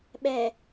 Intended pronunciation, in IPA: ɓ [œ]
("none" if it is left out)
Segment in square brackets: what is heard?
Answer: ɛ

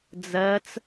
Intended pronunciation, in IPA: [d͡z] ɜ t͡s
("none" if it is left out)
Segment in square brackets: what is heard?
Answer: d͡z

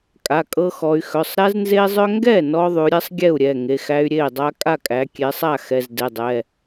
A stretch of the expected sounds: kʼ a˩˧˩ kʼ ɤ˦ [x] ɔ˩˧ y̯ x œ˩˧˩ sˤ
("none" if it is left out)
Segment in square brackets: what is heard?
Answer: x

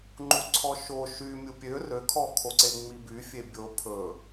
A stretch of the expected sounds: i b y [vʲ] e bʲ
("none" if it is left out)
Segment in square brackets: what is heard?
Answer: fʲ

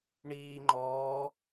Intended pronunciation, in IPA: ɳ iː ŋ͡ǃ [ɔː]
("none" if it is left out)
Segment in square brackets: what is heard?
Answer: ɔː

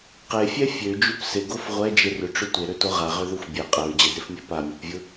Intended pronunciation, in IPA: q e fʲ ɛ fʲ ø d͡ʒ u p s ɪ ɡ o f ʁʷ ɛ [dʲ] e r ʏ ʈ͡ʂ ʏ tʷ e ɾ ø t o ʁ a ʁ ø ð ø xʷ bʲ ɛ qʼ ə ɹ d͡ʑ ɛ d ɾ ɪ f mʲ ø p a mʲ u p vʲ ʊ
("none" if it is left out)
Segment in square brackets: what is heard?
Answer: d͡ʒ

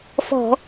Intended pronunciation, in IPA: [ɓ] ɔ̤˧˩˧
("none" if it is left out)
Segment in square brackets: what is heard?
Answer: f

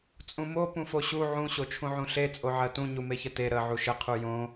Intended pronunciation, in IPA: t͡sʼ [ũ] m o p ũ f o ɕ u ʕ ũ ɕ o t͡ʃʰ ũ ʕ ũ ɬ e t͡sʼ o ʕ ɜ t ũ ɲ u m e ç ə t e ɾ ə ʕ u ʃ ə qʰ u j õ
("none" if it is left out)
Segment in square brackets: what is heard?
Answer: ũ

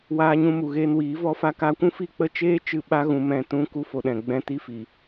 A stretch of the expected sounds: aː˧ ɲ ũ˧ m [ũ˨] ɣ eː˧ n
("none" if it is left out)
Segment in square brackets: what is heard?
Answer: u˨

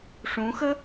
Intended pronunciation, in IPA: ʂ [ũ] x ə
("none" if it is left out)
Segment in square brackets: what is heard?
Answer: ũ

